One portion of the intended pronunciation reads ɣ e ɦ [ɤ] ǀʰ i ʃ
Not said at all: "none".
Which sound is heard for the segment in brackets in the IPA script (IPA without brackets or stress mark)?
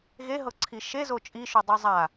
ɤ